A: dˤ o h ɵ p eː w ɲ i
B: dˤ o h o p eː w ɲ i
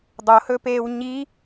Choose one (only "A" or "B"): A